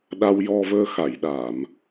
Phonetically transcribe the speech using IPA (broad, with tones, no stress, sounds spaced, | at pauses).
ɗ a˧ w j ɔ˧ v əː˧ x a˨˩˨ j ɗ aː˨˩˨ m